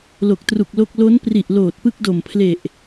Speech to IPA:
l o˨˩ k̚ t r u˨˩ k̚ l o˥˩ k̚ l o˦˥ n p r i˨˩ ʔ l oː˨˩ t̚ p ɯ˦˥ k̚ d o˨˩ m pʰ l e˨˩ ʔ

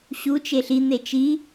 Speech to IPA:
ɕ u t͡ʃ e ɬ i n̪ e t͡ʃ i

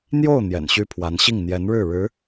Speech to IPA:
n̪ j o˥˩ ʊ̯ n̪ j ɛ̰˨˩ n ɕ y˥ pʰ w a˧˥ n ɕ i˥˩ ŋ n̪ j ɛ˧˥ n ɻ ɻ̩˥˩ ɻ ɻ̩˧˥

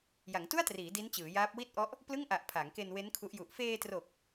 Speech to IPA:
j a˩˦ ŋ t u˥˩ a̯ t r iː˩˦ d i˦˥ n t͡ɕ ɯː˩˦ j aː˦˥ p̚ w i˥˩ t̚ ʔ ɔ˦˥ ʔ | p l ɯ˥˩ ŋ ʔ a˨˩ ʔ pʰ a˩˦ ŋ k e˧ n w e˦˥ n kʰ u˦˥ ʔ j u˨˩ ʔ f eː˧ t r o˨˩ k̚

